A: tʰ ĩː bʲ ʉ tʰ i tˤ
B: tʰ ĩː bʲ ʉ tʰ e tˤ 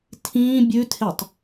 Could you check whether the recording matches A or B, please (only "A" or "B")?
B